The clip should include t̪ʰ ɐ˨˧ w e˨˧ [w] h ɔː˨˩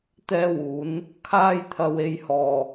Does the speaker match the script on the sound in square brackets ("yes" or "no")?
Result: no